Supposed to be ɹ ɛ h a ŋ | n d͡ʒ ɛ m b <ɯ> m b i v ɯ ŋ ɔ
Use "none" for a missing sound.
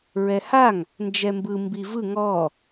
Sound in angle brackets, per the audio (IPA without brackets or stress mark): ɯ